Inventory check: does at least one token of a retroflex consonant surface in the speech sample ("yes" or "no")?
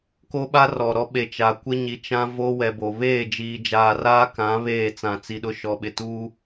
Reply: no